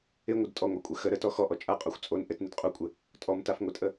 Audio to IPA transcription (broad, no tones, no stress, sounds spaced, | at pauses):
ɪ ŋʷ ɪ d tʼ ɔ ŋʷ a kʷʼ ɘ x ə ɾ ə t ɔ x ɔ ʔ ɔ t͡ʃʼ a qʼ ɔ xʷ t͡sʼ o n ʔ ɘ t n ɪ d qʼ u kʷʼ ɪ | tʼ ɔ m t a f ŋʷ ɘ tʼ ə